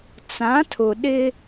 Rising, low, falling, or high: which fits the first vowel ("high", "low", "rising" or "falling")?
rising